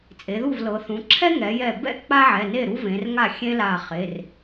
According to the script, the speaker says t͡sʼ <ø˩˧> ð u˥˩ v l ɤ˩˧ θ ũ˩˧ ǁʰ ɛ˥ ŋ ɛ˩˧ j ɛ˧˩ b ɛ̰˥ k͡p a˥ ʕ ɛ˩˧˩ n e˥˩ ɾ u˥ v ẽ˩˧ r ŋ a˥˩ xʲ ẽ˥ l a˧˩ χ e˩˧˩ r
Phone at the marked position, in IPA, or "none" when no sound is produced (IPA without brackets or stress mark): e˩˧